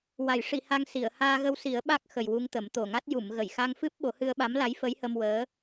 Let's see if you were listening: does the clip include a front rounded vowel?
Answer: no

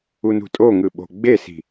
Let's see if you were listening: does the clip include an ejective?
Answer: yes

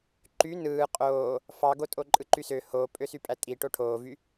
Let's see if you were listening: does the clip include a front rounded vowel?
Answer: yes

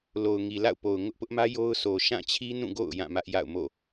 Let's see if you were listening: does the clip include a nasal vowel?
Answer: yes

